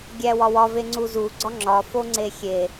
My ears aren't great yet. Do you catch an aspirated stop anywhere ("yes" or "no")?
no